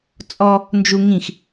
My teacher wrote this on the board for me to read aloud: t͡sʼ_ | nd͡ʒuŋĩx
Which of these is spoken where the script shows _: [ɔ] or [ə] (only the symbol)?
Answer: ɔ